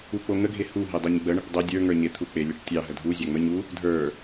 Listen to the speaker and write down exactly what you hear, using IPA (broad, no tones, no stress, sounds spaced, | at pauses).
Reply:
u k͡p o ŋ ə ɡʱ e h u ɦ e dˤ e ɲ ɡ͡b ə ɳ e ʈ dˤ ə dʲ ə˞ ŋ ə˞ ɲ e t̪ʰ u k͡p e lʲ ə ʈ tʲ ɑ ɦ ə dʱ u zʲ ɑ ŋ͡m ə ɲ u | dʱ ə˞